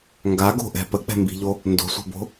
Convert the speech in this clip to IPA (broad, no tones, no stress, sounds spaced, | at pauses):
ŋ ɡ a ɡ o̤ ʔ ɛ̤ p ə k͡p ɛ̤ m b i̤ ʎ o | n d o̤ sʷ ɛ̤ b o̤